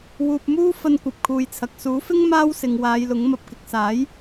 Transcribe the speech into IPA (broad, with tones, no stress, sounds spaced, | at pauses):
w uː˨ p̚ m uː˥ f ɐ˧ n kʷ ɐ˨ p̚ kʰ uː˨ j t͡sʰ ɐ˨ k̚ s uː˨˥ f ɪ˥ ŋ m aː˥ w s ɪ˨ ŋ w aː˨˧ j l ʊ˨˥ ŋ m ɐ˨ p̚ k ɪ˨ k̚ s aː˨˥ j